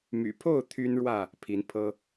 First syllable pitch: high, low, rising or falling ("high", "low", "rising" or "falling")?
low